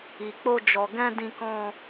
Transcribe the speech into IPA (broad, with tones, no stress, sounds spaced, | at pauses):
i˨ k͡p o˧ d͡ʒ ɔ˨ ɡ ɛ̃˧ d ĩ˧ k ɔ̃˧